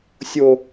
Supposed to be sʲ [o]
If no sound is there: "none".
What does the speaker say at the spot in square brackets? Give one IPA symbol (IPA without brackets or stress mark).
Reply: o